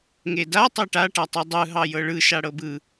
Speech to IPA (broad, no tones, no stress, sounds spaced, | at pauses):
ŋ e d a tˤ e ʈ a ʈ a tˤ e dˤ ɯ ɦ ɑ j ɤ ɭ ɯ ʃ a ɽ ɤ b ɯ